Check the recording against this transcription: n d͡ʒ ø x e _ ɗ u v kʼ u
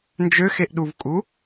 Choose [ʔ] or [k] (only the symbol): ʔ